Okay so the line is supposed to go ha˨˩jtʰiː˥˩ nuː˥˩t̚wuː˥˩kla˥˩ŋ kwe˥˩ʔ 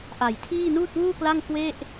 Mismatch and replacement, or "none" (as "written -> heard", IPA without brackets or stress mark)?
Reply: h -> ʔ